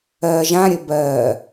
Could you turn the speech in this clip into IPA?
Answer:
ɜ ʒ ã ɾʲ ə b ɜ

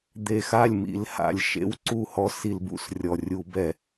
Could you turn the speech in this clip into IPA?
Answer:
d̪ e˨˩ x a˥˩ lʲ m ḭ˨˩ l h a̰˨˩ lʲ ʃ ḛ˦ w ǀ u˥˩ h ɔ˦ s i˧˩˧ l b ṵ˧˩˧ s rʲ ɔ˨˩ rʲ u˧˩˧ b ɛ˧˩˧

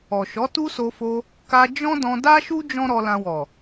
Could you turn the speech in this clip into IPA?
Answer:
ɔ˨ ʃ ɔ˨˦ t u˦ s o˧ f o˧ | k a˧ d͡ʒ ɔ̃˦ d ɔ̃˧ d a˦ ʃ u˦ d͡ʒ ɔ̃˦ ɾ ɔ˧ l ã˧ w ɔ˨

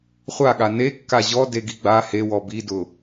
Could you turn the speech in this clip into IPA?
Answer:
χʷ a ɠ a n e kː a ʑ ɔ d e ɡ i ɡ͡b a h e w ɔ b i d ʊ

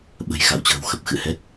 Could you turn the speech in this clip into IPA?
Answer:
ɓ ə̤˨˩ j x a̰˧˨ w t͡ɕ ə̤ː˨˩ w x ə˨˩ p̚ x ɨ̰˧˨ h ɛ˦˥ t̚

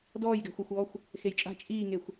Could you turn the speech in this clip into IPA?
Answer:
d ɔː j ɡ æ̤ xʷ æ xʷ ɔː xʷ | x e j t͡ʃʼ a̤ t͡ʃʼ iː ŋ e xʷ

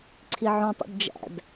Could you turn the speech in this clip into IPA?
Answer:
ǀʰ i ʕ õ tˤ ṵ d d͡ʒ æ̰ d

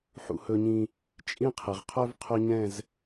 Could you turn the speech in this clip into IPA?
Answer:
ħ ṵ˦ h ɵ˦ ɲ ĩ˦ | t͡ʃʼ ĩ˦ qʰ ɘ˨ ʁ qʰ œ˦ v qʰ ɵ˦ ɲ ɛ̃˦˨ z

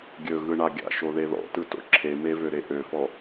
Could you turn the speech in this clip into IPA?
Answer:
ɡʲ ɵ ɣ ɯ ɳ a ɡʲ a̰ ʃ o ð e ð ɔ̰ t ɯ t o̰ ǁʰ e m e v ø ɾ e ʔ ø f ɔ

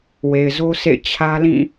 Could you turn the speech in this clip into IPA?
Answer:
w e˨ ɪ̯ z o˦ sʰ ḛ˦˨ ɪ̯ t͡ɕʰ ä˦ l ĩ˦˨

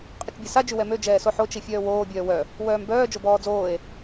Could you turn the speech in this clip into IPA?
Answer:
qʼ ə t͡ʃ bʲ ɛ s a d͡ʒ y w ɛ m ø d͡ʒ ɛː s o ħ o t͡ʃ i fʲ œː w oː bʲ œː w œ | w œː m b œː d͡ʒ o b ɔː d͡z oː e̯

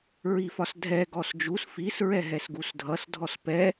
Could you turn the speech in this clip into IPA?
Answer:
ɹ i f ɒ s dʱ ɛ ɡ ɔ s d͡ʒ u s f i s ɹ ɛ ɦ ɛ s ɡ u s dʱ ʌ s dʱ ɔ s p ɛ

